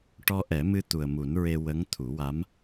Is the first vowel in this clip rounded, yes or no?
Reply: yes